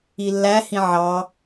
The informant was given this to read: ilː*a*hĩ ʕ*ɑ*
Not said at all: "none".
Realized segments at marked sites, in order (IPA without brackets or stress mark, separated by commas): æ, ɑ